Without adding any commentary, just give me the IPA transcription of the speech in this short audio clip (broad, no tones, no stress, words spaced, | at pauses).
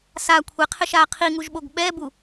sa kʷʰeqʰɪʃaː qʰiŋuʒɓoɡ ɓɛbu